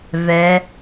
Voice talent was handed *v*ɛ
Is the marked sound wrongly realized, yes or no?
no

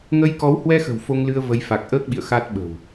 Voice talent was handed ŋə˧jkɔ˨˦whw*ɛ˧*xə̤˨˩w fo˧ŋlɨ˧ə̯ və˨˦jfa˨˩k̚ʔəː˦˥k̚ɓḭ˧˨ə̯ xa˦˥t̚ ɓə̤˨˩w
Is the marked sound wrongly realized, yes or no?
no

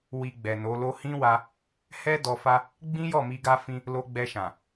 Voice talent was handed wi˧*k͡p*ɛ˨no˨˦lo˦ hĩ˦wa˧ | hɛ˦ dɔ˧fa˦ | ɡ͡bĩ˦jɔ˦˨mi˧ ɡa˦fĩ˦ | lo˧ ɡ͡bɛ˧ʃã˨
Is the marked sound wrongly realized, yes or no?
yes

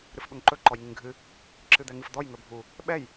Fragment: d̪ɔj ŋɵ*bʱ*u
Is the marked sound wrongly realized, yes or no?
no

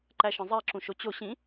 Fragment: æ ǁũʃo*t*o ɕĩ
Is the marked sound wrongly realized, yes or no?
yes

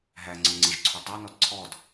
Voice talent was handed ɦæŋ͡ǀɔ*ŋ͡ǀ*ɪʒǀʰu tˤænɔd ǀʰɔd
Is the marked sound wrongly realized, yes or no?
no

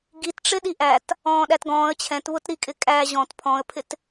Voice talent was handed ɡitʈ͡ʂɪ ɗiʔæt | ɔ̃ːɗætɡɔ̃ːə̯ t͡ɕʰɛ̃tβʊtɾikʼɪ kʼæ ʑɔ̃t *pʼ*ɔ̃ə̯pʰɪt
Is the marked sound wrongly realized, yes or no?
yes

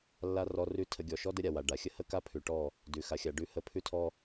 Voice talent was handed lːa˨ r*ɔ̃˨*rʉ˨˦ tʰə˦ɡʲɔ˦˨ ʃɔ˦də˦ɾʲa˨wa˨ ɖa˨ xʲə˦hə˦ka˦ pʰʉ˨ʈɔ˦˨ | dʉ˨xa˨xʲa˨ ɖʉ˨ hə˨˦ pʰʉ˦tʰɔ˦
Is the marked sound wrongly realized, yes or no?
yes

